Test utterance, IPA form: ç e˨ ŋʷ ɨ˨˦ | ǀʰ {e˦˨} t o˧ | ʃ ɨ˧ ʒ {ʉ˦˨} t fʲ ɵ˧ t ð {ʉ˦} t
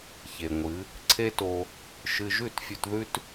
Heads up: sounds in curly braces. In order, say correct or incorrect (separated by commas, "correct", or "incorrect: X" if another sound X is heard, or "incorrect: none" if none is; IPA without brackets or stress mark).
incorrect: e˦, correct, correct